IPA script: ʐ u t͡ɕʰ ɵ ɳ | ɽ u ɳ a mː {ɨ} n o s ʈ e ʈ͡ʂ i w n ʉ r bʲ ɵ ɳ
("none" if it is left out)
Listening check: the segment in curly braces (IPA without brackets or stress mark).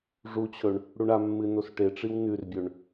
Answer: ɨ